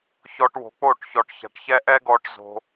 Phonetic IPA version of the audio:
ç ɔ˧ ʈ w o̤˨˦ k͡p o˦˨ ʈ ç ɔ˨ ʈ ç a̤˨ ʈ ç ɛ˧ ʔ ɛ˦ ɡ ɔ˧ ʈ z o̤˧

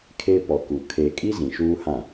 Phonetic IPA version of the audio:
kʰ e˦ p ɔ˨ k u˨ kʰ e˨ kʼ i˦ z ĩ˨ ʃ uː˦ h ã˦˨

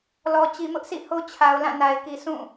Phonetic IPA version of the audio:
l ɔ˨ t͡ɕ i˨ m ʊ˦ ʔ sʰ ḭ˦˨ h o˦ t͡ɕʰ a˨ ʊ̯ l ã˦˨ n a˨ ɪ̯ k i˨ sʰ ũ˦˨

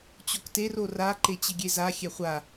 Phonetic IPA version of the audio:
t͡ɕ o k t e r o r a ǃ e t͡ɕ ɪ ɡʲ e z a xʲ ɛ χʷ a

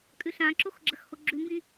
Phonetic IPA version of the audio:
kʼ ʉ ɬ ã ǁ o x ɡ͡ǁ ɐ x h o ɡ͡ǁ ʉ m b ĩ

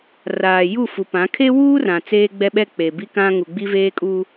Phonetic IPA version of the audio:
r aː˨ j u˦˨ f u˨ p ã˨˦ kʰ e˦ w uː˦ r ã˨ t͡s eː˦ ɡ͡b ɛ˦ ɓ ɛ˦ k͡p e˨ b i˦ k ã˦ ŋ u˨ ɡ͡b i˦ v eː˦ kʼ u˦

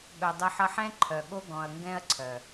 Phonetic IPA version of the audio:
ɠ œ˨ dˤ ɤ˦ ħ ʌ˦ ħ ɛ̃˦ ǃʰ œ˨ ɠ o˦ ɡ ɔ̃˨ ɐ̯ ŋ ɡ ɛ̃˦ ɐ̯ ǀʰ œ˨

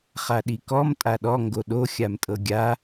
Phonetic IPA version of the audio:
χ a ɗ i k ɔ m tʼ a ɗ ɔ ŋ ɡ o ɗ o xʲ a m tʼ ɤ ɡʲ a

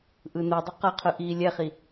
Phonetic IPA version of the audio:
ʔ ɯ n u dˤ ʌ q ʌ qʰ ɯ ʔ iː lʲ ɛ χ i

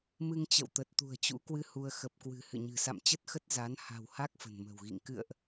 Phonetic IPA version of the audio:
m ɨ˧ ŋ t͡ɕ ə̰˧˨ w t̪ ə˨˩ t̚ t̪ ṳ˨˩ ə̯ t͡ɕ ṵ˧˥ k w ɨ˧ h u˧ ə̯ x ə˨˩ p̚ k w ɨ̤˨˩ h ɨ̰˧˨ ɲ ɨ̤˨˩ s a̰˧˨ m t͡ɕ ə˦˥ t̚ x ə˦˥ t̚ z a˨˦ n h a̤˨˩ w h a˦˥ k̚ f ə̤˨˩ n m ə̤˨˩ w ɣ ḭ˧˨ ŋ k ɨ̰˧˨ ə̯ ʔ

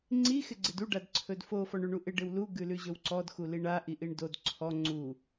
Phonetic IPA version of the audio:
ŋ͡ǀ i x ɪ ɡ͡ǀ ɪ d u ɖ a d ǀʰ ɵ d f o f ɔ ɳ ʉ ɳ u ʔ ɪ ɖ ɪ w l u ɡ ʉ l ʉ ʑ ɵ w ǀ ɔ d x u l i ɳ a ʔ i ʔ i ɳ d o d ǀʰ ɔ ŋ͡ǀ u

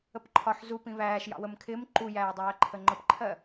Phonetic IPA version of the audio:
ə p ǃʰ ɒ ħ z u p ĩ β æː ʃ j ɑ̰ w ə m kʰ ɪː m ǃ u j æː dˤ æː ǃʰ ə ŋ͡ǃ ə p ǃʰ ɜ

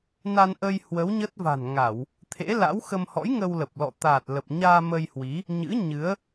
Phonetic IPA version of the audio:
n a˧ n ʔ ə˧ j h w ə˨˦ w ɲ ə˦˥ t̚ v a̤˨˩ n ŋ a˧˩˨ w | t̪ʰ ḛ˧˥ l a̰˧˥ w x ə˧ m h ɔ̰˧˥ j ŋ ə˧ w l ə˨˩ p̚ l ɔ̰˧˨ t̪ a˨˩ t̚ l ə˨˩ p̚ ɲ aː˧ m ə˧ j h w i˨˦ | ɲ ɨ̰˧˥ ɲ ɨ˨˦ ə̯

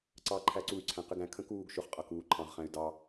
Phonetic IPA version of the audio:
ǀ ɑ ǃʰ æ ǀ u y̯ ǀʰ æ̃ q ɪ ɡ æ̃ kʰ ə̃ k uː ɡ ʃ ʊ χ qʼ ʌ k uː ǃʰ ɑ̃ ʁ χ æ̃ y̯ d ɑ

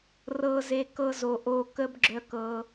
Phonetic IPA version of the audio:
r ɤ˨ z e˨ k ɤ˦ z o˨ ʔ o˧ k ə˦ b ɡ͡ǁ œ˧ k ɤ˧

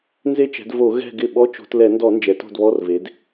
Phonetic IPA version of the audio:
n z e˦˨ t͡ʃ ɛ̤˩˧ d v o˧˩˧ ɣ ɛ̤˦˨ ɡ ɪ˦˨ ɓ ɔ˧˥˧ t͡ʃ o̤˧˩˧ t l ɛ˧˩˧ n d ɔ˧˩˧ n d͡ʒ ɛ˩˧ t o̤˦˨ d β ɔ˧˥˧ r v e˩˧ d

